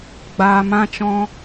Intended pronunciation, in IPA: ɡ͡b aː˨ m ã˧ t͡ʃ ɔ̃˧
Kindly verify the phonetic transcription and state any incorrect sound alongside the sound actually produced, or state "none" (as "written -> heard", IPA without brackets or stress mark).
none